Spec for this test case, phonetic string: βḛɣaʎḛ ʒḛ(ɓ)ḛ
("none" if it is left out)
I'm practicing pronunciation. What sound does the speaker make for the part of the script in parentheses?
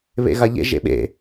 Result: ɓ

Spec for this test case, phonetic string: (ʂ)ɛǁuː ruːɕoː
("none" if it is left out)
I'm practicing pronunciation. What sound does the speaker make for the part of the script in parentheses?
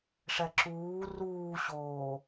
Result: ʂ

